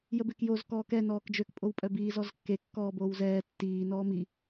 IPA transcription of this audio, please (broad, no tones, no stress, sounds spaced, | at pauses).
j ə b e k j o z k ɔː k ɛ n ɔː k d͡ʒ ø k pʼ o w pʼ œ b iː z ɔ z kː e kː ɔː b oː w z ɛː tː iː n ɔː m i